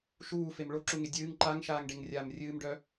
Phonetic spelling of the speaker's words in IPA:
ʃ uː f e m ɭ o ǁ u ŋ e dʲ ɨː ŋ ǃ a ŋ ʃ aː ŋ ɖ e ŋ rʲ aː m rʲ ɨː m ɖ œ

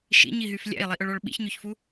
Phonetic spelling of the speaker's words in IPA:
ʃ ḭ ɲ i ɦ y f lʲ æ̰ i̯ lˠ i ʔ œ ɭ ɔ ɭ ɓ ḭ ç ɲ ø ç f u

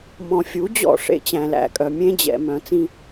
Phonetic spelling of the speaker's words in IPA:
m ɔ̃˨ fʲ u˨˦ d͡ʑ ɔ̰˦˨ ʂ ḛ˦ t͡ɕ æ̃˨ l æ̰˦˨ kʼ œ˨ mʲ ẽ˦ d͡ʑ ɛ̰˨ m œ̃˨ t͡s ĩ˦

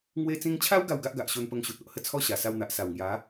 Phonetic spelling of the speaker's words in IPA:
ŋ w e˧ t͡s ĩ˧ ŋ t͡ɕʰ a˦ w ɡ a˥˧ w ɡ a˦ ʔ ɡ a˨ ʔ ɕ o˧ n p ə˧ ŋ ɕ u˨ t̚ o˨ ʔ h ə˥˧ t͡sʰ ɔ˦ ɕ a˨˩ s a˧ w n̪ a˨ ʔ s a˨˩ w ŋ j a˨˦

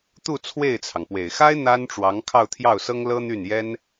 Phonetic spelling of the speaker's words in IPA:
t̪ u˥˧ t͡sʰ w e˥˩ ɪ̯ t͡sʰ ɑ˩ ŋ p w e˨˩ ɪ̯ x a˥ ɪ̯ n̪ a˥ n ʈ͡ʂ w ɑ˧˥ ŋ kʰ ɑ˥˧ ʊ̯ t̪ʰ j ɑ˥˩ ʊ̯ s ɤ˥ ŋ l ɤ˥ n̪ y˥˩ n j ɛ˥ n

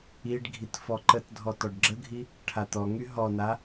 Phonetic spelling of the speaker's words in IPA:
i ɖ ɡʱ i t f ɔ ǃ ə t dʱ ɔ t ɔ ɖ ɡ͡ǁ ə ɡʱ i | ʈʰ a t̪ ɔ ŋ y ɦ ɔ n a

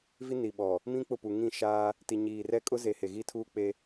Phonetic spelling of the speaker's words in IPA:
v i˦ n i˨ ɓ ɔ˨ | m ĩ˦ k͡p ʊ˦˨ p u˨ ŋ ĩ˦˨ ʃ aː˦ | t i˨ ɲ iː˨ r ɛ˦ kʼ ʊ˦ z e˨ h e˨ ɣ i˦ tʰ uː˦ k͡p e˦

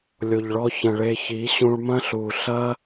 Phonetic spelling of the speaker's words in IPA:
lʲ o˨ ʎ ɭ ɔ˧ ç ɐ̃˨ ɭ e˧ ç i˨˦ ɕ ũ˧ ɭ m ɐ̃˦ ɬ u˨ ɬ ɐ˦

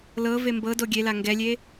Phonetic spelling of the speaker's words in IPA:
l ɤ v e m b ɤ d o ɡʲ e l a ŋ ɡ ɛ lʲ e

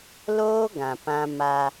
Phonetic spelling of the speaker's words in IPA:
l oː˦ ɡ ã˨ p ã˦ m a˦

